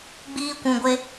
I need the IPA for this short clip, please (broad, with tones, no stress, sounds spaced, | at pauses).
ɡ͡b iː˧ kʷ ũ˨ ɡʷ e˧